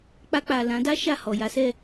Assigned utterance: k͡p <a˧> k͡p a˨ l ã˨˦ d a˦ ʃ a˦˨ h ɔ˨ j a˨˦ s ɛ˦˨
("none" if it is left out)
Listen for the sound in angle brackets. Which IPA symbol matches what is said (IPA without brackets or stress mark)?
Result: a˧